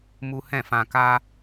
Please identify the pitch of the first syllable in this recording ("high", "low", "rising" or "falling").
high